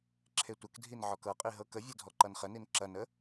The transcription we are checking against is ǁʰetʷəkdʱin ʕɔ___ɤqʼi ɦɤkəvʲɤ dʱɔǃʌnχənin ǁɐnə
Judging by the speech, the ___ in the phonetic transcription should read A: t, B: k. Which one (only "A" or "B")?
B